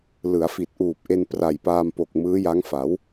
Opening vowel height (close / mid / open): close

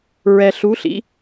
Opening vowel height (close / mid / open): mid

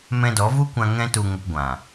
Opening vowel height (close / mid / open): mid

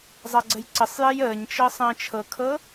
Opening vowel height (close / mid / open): open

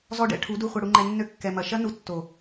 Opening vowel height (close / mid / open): mid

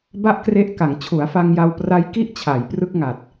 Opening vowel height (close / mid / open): open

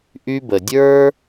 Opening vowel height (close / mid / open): close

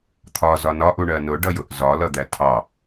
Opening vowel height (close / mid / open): open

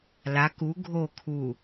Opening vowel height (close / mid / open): open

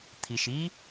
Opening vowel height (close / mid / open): close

